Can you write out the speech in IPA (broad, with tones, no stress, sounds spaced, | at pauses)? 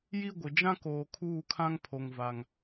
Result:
j i˦ ɡʷ ɪ˨ d͡ʒ ã˦ k oː˨ kʰ uː˦˨ kʰ ã˦ ŋ pʰ o˦ ŋ v a˦ ŋ